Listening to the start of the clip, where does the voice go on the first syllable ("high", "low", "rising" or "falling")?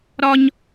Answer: high